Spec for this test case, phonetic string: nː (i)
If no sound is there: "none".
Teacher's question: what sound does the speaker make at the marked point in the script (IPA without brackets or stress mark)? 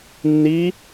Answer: i